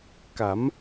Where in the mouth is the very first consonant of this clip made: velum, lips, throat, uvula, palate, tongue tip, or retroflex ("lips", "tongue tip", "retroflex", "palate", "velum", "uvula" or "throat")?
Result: velum